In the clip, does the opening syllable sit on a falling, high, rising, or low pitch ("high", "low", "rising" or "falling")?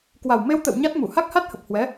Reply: low